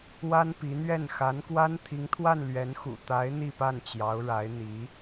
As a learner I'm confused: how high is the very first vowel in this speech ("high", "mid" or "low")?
low